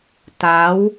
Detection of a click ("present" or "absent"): absent